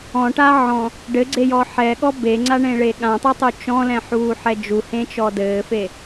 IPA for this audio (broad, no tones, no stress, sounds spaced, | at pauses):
ɔ̃ ʈ a ʕ ɔ̃ | ɖ ɘ ɡ͡ǀ e j ɔ ħ ɛ ɠ ɔ b e ŋ͡ǀ a ɳ ẽ ɭ e ɠ ã tˤ e tˤ u t͡ʃ ɔ̃ l ɛ̃ ħ uː ħ ɛ d͡ʒ u h ẽ t͡ʃ ɔ d ɘː f e